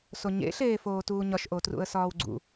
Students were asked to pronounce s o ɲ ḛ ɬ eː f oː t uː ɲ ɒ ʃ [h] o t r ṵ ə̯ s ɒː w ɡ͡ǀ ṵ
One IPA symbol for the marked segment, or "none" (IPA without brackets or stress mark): ʔ